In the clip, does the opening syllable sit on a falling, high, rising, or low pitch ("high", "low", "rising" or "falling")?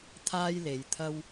high